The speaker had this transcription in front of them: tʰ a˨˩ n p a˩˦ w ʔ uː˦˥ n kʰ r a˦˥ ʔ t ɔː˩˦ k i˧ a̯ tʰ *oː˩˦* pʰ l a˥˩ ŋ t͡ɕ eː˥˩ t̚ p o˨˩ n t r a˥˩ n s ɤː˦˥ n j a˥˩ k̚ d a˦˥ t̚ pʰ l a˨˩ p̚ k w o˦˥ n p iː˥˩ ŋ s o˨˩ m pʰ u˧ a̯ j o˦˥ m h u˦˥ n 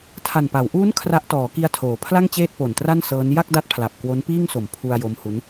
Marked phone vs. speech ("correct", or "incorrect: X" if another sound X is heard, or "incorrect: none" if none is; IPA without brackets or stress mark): correct